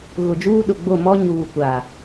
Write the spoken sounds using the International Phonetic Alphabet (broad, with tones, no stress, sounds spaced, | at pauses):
ɣ ʊ˨ d͡ʒ uː˦ ɗ ʊ˨ ɡ͡b o˦˨ m ɔ˦ ɲ uː˨ kʷ a˨